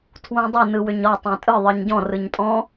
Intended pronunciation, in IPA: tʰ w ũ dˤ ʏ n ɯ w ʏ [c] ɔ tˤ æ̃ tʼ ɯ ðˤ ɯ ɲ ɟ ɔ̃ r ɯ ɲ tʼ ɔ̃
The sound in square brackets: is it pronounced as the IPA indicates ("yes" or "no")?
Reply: no